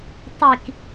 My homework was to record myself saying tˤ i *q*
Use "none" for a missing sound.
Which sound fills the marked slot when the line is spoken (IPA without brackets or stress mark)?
k